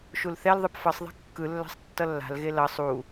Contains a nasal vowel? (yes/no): no